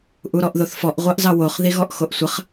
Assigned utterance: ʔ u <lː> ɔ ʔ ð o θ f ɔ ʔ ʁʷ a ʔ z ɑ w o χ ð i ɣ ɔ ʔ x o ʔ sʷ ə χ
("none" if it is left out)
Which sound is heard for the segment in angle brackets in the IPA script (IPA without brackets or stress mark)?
ɾ